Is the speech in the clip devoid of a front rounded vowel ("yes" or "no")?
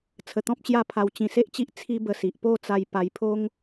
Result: yes